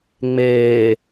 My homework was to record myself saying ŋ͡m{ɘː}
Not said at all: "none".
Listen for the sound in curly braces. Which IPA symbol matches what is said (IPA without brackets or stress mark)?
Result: eː